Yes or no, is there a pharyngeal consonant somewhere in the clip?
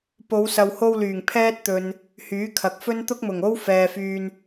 no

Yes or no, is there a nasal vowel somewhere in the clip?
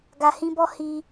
yes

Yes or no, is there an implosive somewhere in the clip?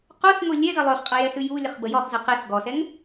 no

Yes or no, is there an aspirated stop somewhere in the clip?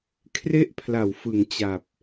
yes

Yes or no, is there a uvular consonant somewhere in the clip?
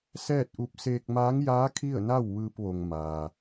no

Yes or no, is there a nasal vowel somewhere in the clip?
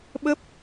no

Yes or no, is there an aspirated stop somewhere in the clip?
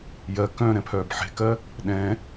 yes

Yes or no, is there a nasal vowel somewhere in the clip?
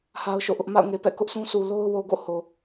yes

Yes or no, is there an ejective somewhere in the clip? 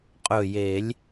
yes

